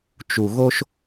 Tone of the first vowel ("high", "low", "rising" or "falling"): low